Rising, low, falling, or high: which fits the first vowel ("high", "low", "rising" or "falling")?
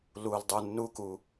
low